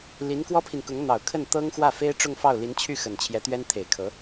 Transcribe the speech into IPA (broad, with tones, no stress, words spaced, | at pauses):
li˧˥nkwɔ˥pʰi˨nkʊ˧˥ŋ n̪ɑ˨˩ʊ̯kʰə˥˩n t̪ɤ˥ŋxwä˥˩ fe˥ɪ̯ʈ͡ʂʊ˥˧ŋfɑ˥˩ʊ̯ li˧˥nt͡ɕʰy˥˩ xə˨˩nt͡ɕʰjɛ˧˥t̪ɥɛ˥n t̪ʰe˨˩ɪ̯kʰɤ˧˥